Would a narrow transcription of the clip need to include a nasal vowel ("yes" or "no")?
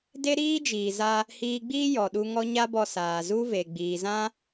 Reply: yes